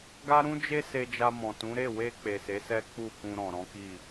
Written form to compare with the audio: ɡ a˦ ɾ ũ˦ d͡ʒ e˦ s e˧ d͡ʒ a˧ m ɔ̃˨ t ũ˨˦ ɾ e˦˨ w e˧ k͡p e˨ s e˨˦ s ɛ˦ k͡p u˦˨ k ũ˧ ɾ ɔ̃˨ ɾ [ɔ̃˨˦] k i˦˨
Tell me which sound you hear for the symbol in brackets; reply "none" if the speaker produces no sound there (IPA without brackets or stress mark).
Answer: ɔ̃˨˦